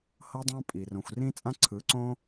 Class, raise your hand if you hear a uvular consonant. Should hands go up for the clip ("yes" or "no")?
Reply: no